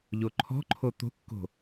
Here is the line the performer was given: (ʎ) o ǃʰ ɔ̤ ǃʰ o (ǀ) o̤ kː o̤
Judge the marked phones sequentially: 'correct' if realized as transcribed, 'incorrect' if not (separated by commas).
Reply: correct, incorrect